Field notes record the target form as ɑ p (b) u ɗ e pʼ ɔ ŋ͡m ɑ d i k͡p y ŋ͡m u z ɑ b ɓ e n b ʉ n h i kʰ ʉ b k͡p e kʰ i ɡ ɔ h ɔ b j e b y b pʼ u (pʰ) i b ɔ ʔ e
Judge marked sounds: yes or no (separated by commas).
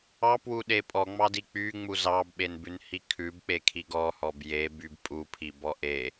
no, yes